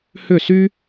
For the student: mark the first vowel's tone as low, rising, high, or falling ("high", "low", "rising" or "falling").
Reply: falling